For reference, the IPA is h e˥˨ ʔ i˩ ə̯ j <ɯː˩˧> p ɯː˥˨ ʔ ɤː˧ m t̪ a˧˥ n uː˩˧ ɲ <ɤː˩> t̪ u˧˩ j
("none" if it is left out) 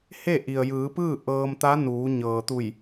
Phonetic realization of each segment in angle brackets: ɯː˩˧, ɤː˩

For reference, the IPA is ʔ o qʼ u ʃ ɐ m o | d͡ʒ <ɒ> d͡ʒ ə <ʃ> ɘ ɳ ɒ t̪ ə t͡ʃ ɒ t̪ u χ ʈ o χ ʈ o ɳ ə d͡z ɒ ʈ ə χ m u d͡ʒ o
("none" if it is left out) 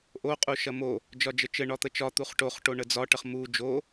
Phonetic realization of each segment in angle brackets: ɒ, t͡ʃ

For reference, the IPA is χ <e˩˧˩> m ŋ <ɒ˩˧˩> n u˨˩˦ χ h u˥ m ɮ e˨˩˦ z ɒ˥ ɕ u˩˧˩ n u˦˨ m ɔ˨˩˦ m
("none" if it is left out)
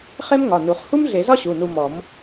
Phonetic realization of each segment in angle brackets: e˥, ɒ˩˧˩

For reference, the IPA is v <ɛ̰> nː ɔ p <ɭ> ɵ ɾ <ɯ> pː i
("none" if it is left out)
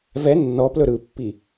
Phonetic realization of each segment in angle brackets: ɛ, l, ɯ

